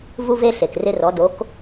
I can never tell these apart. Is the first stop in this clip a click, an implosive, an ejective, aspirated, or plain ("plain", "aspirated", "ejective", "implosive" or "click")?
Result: plain